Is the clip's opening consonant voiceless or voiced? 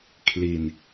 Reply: voiceless